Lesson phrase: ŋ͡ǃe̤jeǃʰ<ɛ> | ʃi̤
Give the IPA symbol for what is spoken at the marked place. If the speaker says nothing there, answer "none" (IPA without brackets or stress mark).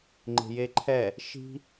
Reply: ɛ